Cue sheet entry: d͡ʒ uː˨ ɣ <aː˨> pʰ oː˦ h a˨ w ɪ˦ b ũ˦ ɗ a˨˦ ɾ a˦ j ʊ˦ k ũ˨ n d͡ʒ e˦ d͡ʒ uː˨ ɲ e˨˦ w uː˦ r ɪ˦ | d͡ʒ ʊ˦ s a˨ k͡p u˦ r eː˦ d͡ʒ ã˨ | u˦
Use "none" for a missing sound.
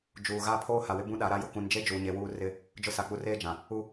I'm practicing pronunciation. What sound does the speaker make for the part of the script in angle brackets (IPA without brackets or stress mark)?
aː˦